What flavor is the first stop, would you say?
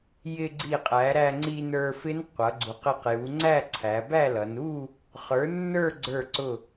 click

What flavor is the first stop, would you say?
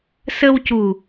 plain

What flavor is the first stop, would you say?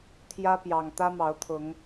aspirated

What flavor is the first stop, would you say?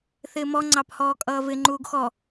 click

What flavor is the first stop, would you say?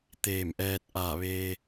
plain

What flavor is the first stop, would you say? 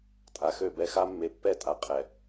ejective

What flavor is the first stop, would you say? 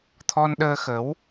aspirated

